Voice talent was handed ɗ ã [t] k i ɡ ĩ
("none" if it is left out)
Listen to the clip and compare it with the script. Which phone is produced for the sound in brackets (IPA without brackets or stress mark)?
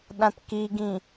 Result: t